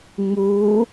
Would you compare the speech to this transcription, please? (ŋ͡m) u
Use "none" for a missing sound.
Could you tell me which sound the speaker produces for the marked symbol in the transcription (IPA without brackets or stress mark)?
ŋ͡m